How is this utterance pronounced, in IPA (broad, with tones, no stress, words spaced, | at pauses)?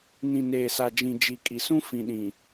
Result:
nĩ˨ neː˨sa˨d͡ʒĩ˨ d͡ʒi˨kʼi˨sũ˦ fĩ˨ɗĩ˨